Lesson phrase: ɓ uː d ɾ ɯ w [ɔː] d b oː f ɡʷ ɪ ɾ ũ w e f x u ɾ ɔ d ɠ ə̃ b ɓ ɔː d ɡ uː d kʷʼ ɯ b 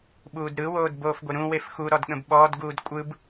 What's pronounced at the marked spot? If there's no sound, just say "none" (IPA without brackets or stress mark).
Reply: oː